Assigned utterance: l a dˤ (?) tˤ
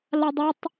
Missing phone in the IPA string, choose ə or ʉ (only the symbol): ʉ